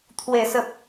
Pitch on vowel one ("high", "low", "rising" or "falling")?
low